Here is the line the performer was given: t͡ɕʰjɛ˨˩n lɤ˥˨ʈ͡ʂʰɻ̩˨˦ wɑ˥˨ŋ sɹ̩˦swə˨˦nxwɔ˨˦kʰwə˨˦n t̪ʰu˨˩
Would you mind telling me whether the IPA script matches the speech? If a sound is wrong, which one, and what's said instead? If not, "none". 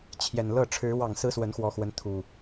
kʰ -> x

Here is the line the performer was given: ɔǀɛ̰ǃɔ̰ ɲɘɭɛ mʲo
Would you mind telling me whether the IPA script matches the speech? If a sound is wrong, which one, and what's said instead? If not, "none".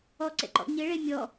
o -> ɔ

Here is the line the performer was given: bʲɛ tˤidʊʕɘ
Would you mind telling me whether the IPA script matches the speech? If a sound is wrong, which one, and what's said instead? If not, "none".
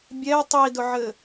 none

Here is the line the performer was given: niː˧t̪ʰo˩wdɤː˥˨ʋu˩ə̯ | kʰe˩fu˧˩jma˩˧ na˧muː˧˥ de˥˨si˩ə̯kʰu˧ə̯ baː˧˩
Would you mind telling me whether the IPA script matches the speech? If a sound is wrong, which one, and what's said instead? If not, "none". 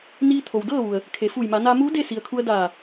b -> d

